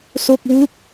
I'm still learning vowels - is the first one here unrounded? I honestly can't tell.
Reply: no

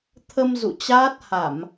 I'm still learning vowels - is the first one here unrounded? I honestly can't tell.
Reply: yes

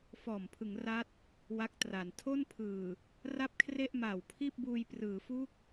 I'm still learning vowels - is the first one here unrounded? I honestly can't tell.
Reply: no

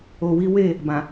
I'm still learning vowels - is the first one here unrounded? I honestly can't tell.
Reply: no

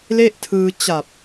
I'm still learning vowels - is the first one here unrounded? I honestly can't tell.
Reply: yes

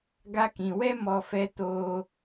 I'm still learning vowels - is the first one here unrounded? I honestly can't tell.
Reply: yes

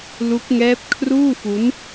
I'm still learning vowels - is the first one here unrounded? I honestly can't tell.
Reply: no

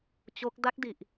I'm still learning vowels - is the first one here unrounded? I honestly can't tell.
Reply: no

